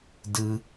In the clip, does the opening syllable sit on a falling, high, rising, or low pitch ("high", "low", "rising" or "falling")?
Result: high